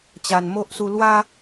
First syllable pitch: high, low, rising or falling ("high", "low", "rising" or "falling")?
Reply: low